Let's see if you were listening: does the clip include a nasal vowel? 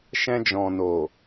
yes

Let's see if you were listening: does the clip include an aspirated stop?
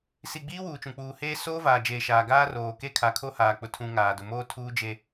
yes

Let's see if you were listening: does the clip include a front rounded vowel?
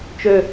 yes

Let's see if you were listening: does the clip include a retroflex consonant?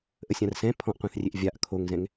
no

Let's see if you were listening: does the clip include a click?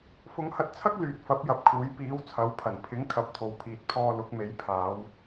no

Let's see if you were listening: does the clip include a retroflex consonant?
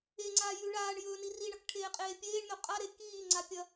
yes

